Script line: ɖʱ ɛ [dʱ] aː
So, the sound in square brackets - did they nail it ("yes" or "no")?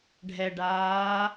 no